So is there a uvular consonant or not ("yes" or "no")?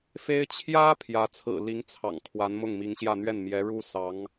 no